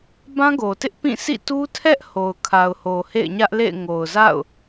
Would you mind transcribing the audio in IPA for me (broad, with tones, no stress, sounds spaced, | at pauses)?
b ã˦ ɡ o˨ t ɪ˦ ʔ p ĩ˦˨ s ḭ˦˨ t u˦ tʰ ɛ˦ ʔ h o˨ ʊ̯ kʰ a˨ ʊ̯ h o˨ h ḛ˦˨ ɪ̯ ɲ ä˦ ʔ l ḛ˦˨ ɪ̯ ŋ o˨ ʊ̯ z a̰˦˨ ʊ̯